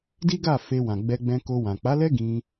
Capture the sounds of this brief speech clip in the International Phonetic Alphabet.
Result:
di˦ɡa˦˨ fe˧wã˨ ɡ͡bɛ˧ɡ͡bɛ̃˧ko˧wã˨ k͡pa˨˦lɛ˦ ɡĩ˧

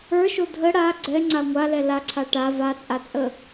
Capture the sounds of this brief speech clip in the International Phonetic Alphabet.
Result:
ə˞ʃo dʱə ɽa ɡ͡ǀɛŋ͡ǀa ŋʷalɛ laǀʰa ʈa vat͡sʼat͡sʼə

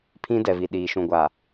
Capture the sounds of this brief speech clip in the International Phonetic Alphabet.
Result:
pʰĩ˦dɛ˨vi˨ ɗiː˨ʃũ˨ɡʷa˨

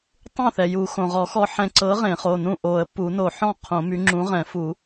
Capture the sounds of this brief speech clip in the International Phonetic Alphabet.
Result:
tˤũ˥˩θɛ˩ju˨˩˦ xõ˩ʁɔ˨˩˦xɔ˧ ħɛ̃˧ ǀɤ˨˥ ʁẽ˨˩˦χo˩˧˩nũ˥˩ ʔo˨˩˦ə̯ pu˨˩˦no˨˩˦ħɔ̃˥˩ qʰõ˨˩˦my˨˥ ŋ͡ǁũ˨˥ʁɛ̃˨˩˦fu˨˩˦

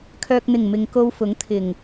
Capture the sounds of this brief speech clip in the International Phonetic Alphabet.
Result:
kʰœː˨k̚n̪ɪ˨˩ŋ mɪ˨ŋko˧wfʊ˨˥ŋ t̪ʰɪ˨˩ŋ

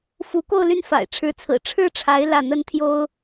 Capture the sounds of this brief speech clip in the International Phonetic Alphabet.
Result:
fu˧˥ko˥˧ʊ̯ ly˥˩nfa̰˨˩ɪ̯ʈ͡ʂʰɻ̩˧˥t͡sʰɹ̩˨˩ ʈ͡ʂʰɻ̩˥ʈ͡ʂʰa˧˥ɪ̯ lä˥˩ n̪ə˥nt̪ʰjo˥ʊ̯

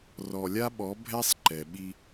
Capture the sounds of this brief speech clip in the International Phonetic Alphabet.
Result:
rɔ˨lʲa˦ɓɔ˨˦ bʱɛ˦sˤ ǃɛ˨ɓi˦

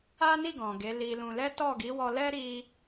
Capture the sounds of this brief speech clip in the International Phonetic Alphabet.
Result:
a˦ni˦˨ ɡɔ̃˨ɡe˨˦li˧lũ˧ lɛ˦tɔ˦˨ɡi˨˦wɔ˧ lɛ˦ɾi˧

